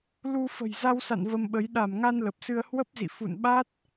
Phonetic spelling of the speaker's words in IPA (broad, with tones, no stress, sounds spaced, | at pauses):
l u˧ f ə̤˨˩ j z a˧ w s a̰˧˨ n v ə˧ m ɓ ə˨˦ j ɗ a˧˩ m ŋ a˧ n l ə˨˩ p̚ s ɨ˧ ə̯ h w ə˦˥ p̚ z ḭ˧˨ f ṵ˧˨ n ɓ a˦˥ t̚